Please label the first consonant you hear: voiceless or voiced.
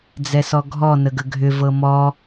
voiced